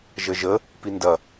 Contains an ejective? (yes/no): no